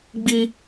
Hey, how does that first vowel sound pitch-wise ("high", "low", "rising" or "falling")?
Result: high